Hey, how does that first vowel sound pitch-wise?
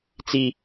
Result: high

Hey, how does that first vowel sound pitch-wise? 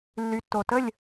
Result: low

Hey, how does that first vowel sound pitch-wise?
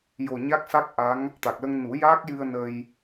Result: low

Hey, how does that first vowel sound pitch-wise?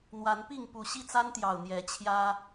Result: rising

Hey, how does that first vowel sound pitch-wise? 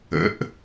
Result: rising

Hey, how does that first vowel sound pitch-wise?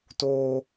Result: high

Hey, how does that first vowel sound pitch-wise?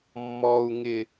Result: low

